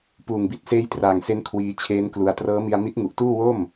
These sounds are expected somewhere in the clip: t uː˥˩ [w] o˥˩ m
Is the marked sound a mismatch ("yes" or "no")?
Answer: no